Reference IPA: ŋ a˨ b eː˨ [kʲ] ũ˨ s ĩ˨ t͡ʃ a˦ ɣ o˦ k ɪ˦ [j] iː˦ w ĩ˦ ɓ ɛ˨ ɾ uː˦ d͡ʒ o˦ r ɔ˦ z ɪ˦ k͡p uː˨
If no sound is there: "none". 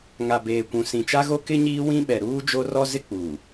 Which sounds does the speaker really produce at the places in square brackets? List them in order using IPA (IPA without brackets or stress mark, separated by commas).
kʷ, ɲ